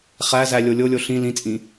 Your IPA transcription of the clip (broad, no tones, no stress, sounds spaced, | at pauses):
χ æ z æ lʲ o lʲ o lʲ o ɬ ĩ l ĩ t͡sʼ ĩ